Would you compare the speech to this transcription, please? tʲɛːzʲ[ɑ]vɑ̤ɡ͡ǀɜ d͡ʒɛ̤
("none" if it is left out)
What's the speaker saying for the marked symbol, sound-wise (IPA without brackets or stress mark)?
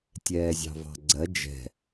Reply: ɑ̤